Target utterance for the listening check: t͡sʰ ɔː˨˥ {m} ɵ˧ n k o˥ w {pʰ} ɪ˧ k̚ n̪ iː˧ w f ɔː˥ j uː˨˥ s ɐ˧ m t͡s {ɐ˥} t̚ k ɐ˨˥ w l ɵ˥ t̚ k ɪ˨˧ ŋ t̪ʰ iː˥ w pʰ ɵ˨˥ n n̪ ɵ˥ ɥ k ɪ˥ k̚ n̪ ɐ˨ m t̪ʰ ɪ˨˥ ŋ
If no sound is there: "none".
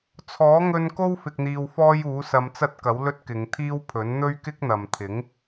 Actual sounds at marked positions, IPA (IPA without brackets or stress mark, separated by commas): ŋ, f, ɐ˥